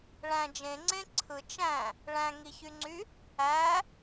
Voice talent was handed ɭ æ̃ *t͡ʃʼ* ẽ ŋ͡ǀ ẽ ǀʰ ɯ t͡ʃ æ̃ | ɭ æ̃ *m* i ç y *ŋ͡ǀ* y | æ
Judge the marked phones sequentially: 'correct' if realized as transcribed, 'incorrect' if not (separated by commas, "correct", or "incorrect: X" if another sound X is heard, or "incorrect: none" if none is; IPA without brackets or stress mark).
incorrect: d͡ʒ, incorrect: ŋ, correct